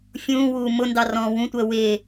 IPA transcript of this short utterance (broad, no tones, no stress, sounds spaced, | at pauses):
fʲ ũː w uː m ʊ n d ɑ r ɔ̃ː w ũ tʷ əː w ɪː